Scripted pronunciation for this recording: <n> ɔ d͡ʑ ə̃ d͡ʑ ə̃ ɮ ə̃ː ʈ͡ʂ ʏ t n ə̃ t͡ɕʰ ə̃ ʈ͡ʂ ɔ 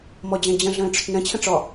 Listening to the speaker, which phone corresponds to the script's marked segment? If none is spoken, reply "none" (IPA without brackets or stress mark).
m